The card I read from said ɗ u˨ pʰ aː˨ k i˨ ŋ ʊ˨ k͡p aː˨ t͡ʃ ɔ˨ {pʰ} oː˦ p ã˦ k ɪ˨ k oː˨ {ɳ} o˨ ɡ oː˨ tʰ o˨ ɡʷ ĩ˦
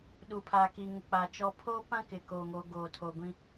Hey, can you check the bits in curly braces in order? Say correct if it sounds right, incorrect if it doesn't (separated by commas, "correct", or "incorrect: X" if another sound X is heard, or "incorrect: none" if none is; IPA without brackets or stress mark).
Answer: correct, incorrect: ŋ